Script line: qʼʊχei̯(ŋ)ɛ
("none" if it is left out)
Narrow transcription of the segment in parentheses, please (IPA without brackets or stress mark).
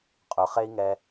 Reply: ŋ